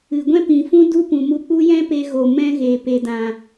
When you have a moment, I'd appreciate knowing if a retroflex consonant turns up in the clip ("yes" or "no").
no